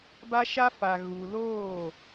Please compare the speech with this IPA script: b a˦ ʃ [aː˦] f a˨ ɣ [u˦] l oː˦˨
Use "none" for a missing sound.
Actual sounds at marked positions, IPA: a˦, u˨

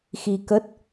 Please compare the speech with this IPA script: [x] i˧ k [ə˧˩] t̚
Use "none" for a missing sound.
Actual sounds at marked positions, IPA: x, ə˦˥

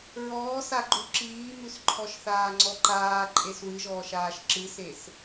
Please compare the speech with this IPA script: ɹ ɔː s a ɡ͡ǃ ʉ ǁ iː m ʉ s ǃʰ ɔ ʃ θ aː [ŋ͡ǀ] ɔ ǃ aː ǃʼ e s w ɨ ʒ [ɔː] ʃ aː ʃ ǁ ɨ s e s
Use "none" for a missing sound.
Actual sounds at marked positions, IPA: ŋ͡ǀ, ɔː

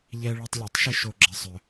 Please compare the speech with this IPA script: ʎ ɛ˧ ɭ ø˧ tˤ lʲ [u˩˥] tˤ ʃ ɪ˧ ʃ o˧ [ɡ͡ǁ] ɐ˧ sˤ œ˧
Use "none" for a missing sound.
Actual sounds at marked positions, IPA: o˩˥, ɡ͡ǁ

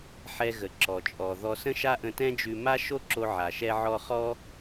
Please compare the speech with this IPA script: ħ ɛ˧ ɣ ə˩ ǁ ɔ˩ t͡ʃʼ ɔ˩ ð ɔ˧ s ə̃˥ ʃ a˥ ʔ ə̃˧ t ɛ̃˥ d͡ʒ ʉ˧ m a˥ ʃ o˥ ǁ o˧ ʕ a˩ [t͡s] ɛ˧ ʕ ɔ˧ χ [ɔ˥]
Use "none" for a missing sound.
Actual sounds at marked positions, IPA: ʃ, ɔ˥

